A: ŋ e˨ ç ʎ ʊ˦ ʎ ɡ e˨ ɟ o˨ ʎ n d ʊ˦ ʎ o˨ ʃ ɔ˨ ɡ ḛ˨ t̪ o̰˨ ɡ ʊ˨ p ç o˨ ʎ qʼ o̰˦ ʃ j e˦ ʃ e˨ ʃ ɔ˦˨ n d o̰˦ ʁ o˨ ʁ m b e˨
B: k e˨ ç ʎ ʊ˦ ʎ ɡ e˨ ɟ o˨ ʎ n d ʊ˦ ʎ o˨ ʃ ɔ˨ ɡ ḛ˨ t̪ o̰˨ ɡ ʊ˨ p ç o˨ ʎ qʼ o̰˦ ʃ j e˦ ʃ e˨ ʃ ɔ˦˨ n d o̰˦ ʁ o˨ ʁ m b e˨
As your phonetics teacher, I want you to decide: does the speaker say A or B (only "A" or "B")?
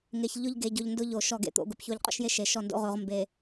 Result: A